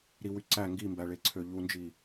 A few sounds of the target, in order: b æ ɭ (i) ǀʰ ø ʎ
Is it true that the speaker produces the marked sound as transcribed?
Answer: no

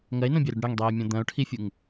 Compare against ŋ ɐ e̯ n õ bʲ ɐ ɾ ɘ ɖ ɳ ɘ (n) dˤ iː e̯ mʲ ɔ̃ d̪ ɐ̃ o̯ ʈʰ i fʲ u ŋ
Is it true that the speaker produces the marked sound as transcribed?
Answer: no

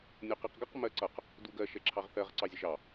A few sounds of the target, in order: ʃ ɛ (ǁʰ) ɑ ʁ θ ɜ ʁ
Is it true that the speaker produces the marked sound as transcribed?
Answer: yes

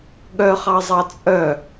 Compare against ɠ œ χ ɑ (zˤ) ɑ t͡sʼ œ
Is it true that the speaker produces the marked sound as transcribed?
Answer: yes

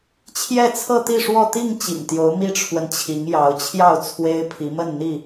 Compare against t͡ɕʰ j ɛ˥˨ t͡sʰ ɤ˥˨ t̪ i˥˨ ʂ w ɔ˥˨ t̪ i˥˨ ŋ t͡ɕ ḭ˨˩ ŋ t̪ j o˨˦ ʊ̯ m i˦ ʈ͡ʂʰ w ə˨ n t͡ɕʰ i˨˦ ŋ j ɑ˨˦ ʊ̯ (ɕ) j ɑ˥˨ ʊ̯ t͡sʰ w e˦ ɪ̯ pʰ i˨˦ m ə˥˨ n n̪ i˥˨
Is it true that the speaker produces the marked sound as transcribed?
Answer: no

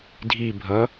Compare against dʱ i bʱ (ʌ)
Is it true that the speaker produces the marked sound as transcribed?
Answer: yes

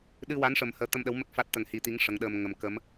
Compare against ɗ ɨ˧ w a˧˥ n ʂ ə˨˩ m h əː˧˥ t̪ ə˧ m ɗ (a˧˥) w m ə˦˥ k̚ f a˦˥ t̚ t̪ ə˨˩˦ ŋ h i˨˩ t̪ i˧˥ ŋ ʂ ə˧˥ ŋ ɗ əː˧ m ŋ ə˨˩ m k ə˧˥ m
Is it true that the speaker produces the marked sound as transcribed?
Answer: no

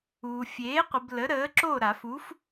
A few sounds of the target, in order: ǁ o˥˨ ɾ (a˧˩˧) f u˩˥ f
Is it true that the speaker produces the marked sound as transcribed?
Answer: yes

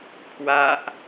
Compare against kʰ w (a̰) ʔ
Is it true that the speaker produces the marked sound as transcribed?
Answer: no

